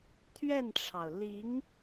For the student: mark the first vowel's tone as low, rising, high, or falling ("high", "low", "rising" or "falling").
falling